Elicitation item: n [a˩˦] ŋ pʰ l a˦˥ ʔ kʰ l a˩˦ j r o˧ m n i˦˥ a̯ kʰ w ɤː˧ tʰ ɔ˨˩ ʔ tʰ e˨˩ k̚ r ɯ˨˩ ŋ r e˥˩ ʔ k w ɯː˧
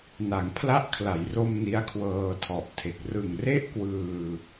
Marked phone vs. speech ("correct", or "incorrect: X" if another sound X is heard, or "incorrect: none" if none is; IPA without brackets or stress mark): correct